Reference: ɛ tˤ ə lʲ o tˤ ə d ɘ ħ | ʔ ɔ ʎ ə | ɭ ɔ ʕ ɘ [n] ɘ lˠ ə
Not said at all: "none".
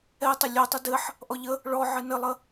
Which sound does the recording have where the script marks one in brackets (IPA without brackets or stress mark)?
n